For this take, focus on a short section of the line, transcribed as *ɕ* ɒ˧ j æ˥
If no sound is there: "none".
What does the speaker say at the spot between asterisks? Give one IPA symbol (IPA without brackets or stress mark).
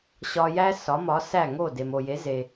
ɕ